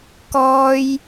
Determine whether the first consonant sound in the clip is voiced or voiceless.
voiceless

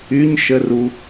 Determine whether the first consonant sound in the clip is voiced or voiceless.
voiced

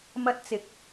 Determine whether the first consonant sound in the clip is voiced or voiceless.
voiced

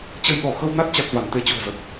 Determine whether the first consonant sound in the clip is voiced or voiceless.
voiceless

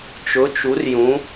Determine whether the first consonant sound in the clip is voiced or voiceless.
voiceless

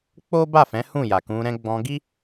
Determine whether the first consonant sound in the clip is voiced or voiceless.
voiceless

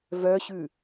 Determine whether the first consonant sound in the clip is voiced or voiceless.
voiced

